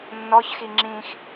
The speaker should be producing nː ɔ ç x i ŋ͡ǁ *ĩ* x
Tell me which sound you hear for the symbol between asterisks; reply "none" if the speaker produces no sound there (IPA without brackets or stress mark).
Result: ĩ